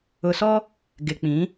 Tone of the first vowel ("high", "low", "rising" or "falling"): low